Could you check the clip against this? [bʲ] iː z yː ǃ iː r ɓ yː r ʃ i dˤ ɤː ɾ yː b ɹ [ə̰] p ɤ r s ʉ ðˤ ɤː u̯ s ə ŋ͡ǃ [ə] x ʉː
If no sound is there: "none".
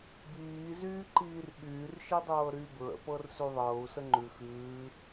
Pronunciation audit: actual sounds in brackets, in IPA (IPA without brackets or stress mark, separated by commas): b, ə̰, ʉ